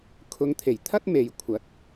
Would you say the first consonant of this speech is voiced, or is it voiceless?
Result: voiceless